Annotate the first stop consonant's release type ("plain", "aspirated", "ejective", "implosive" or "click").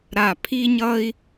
aspirated